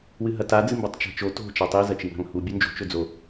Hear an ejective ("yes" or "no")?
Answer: no